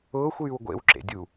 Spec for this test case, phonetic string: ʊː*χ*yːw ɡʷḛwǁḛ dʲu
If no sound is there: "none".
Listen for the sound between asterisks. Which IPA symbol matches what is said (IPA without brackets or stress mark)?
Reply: xʷ